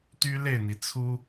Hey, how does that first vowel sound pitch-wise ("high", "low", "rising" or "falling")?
high